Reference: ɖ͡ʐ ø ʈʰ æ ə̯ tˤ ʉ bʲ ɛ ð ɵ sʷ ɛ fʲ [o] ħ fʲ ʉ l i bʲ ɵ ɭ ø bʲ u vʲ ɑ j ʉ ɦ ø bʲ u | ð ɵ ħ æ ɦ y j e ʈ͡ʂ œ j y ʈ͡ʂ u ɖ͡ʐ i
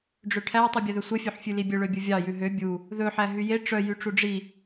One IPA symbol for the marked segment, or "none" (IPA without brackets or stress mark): ɵ